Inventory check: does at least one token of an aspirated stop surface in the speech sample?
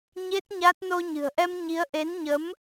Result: no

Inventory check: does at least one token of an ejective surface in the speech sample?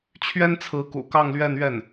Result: no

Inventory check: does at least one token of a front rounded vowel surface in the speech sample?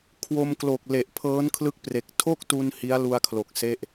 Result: no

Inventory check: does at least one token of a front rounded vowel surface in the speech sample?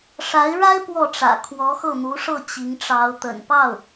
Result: no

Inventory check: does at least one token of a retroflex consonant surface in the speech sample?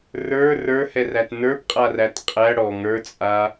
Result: yes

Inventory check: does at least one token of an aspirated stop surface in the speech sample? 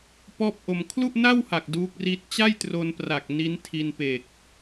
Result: yes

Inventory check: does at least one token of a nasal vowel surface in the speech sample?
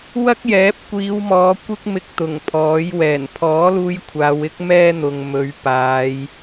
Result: no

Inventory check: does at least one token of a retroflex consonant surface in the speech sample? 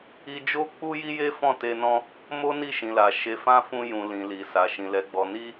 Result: no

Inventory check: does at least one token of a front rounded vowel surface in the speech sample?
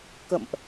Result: no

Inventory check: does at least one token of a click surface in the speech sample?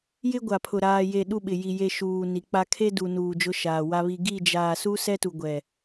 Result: no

